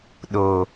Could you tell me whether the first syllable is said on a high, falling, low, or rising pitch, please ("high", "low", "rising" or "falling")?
low